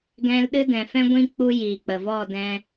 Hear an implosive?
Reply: yes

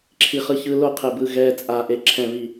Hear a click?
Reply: yes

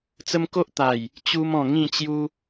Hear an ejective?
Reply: no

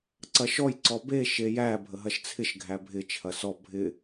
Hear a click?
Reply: yes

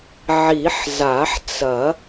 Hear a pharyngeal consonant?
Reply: yes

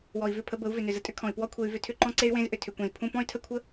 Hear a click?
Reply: yes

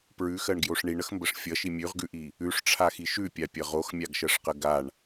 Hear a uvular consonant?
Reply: yes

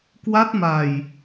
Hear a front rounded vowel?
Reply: no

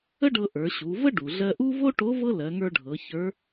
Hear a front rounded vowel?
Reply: no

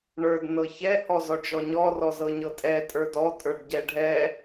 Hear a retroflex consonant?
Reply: yes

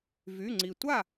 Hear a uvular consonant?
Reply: no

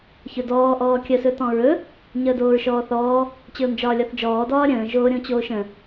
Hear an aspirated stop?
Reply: no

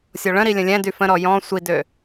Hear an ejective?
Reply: no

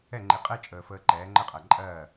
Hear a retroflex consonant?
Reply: no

